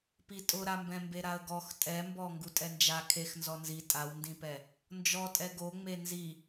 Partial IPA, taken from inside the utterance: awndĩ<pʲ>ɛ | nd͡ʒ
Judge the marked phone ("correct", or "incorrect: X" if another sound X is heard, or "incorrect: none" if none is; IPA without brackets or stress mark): incorrect: p